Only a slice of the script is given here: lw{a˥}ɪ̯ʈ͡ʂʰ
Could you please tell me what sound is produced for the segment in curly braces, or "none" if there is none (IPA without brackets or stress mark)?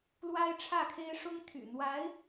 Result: a˥